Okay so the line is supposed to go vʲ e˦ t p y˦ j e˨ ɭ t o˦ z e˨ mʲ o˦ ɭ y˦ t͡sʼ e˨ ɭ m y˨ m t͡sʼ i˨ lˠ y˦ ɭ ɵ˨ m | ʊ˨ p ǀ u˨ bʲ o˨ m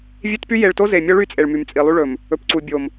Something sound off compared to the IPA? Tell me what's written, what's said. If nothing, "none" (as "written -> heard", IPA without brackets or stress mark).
ʊ˨ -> ɵ˨